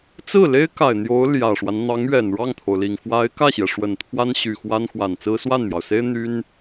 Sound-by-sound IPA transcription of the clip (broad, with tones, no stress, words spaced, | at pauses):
t͡sɹ̩˥˩le˥ɪ̯ka˨˩ɪ̯ n̪jo˧˥ʊ̯ ljä˨˩ʂwa˦n n̪ɑ˧˥ŋɥɛ˨˩n ɻɑ˥˩ŋt̪ʰo˩ʊ̯li˨˩ŋ fwa˧˥ɪ̯kä˥˩ɕjɛ˩ ʂwə˨˩nt̪ʰwa˥n ɕy˨˩xwa˥n xwa˨˩nt͡sɹ̩˥ swa˥˩nmjɑ˩ʊ̯se˥ɪ̯ n̪y˥n